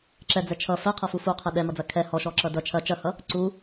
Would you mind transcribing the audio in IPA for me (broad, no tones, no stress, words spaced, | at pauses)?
ǁɛd͡zɛ t͡ʃʰʌ fɛqʰɐfu fuqʰɛ ɗɛmʌd͡zɐ kʰɛ hɔʃɔǁʌ dʌ t͡ʃʰɐ t͡ʃɐhʌ | ǀu